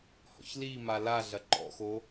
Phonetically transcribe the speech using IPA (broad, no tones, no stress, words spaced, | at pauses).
hɔ̰çlima la ɮɐǃɔ̰xo